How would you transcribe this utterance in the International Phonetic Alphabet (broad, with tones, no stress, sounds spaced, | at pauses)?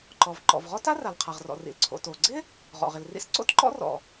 ǃ ɔ˩ v ǃ ɔ̰˩ v ʁ ɔ˥ t a˥ r a˩ l qʰ a˩ ʁ r ɔ̰˩ r ḭ˩ l ǀʰ o̰˩ t o˩ ɡ͡ǀ ɪ˥ | ʁ ɔ̰˩ ʁ ɪ˩ l r ḭ˥ s ǀ o̰˥ t ǃ ɔ̰˥ r ɔ̰˩